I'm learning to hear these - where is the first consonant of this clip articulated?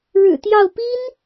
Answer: retroflex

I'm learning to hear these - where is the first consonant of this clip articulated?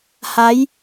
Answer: throat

